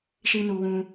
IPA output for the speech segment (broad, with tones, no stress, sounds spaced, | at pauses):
ʃ i˦ n u˧ w ũ˧